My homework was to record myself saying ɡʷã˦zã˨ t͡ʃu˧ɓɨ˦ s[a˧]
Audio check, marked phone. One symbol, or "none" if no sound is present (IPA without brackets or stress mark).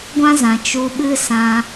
ã˧